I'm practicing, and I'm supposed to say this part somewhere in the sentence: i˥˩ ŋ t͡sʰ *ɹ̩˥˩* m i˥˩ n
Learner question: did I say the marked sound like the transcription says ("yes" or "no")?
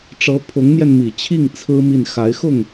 no